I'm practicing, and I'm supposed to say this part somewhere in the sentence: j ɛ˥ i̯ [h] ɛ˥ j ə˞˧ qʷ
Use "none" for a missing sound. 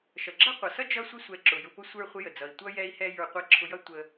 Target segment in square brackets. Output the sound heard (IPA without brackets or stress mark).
h